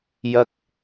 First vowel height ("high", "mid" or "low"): low